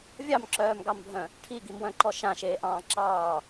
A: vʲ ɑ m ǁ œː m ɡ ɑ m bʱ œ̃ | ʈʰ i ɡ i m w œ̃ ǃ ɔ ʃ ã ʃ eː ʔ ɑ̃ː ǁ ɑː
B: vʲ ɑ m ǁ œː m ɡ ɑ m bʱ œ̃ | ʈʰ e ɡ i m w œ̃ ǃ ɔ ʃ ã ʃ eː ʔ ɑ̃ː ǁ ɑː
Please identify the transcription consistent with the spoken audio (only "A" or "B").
A